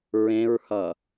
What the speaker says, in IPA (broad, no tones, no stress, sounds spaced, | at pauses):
ɹ ẽ ɹ h ʌ